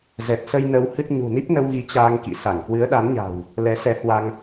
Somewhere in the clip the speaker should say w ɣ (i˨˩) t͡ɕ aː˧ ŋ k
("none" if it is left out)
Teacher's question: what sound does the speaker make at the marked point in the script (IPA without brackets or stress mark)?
i˨˦